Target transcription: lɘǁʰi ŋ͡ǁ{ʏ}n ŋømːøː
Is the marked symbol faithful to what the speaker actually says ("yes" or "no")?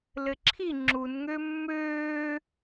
no